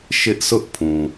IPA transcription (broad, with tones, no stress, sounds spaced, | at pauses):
ʃ ɪ˦ ʔ s ʊ˦ ʔ pʰ ũ˨